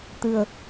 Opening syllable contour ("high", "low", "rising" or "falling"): low